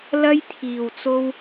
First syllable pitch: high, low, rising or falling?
high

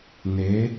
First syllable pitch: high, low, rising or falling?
rising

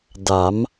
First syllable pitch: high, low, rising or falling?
rising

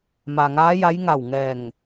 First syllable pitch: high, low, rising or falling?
low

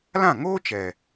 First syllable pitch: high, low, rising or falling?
falling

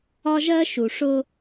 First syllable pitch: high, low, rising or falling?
high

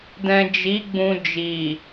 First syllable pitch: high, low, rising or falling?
low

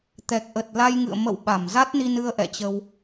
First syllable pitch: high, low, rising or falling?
low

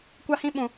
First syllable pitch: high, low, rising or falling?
high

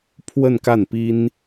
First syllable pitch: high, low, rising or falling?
falling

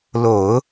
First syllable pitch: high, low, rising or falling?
low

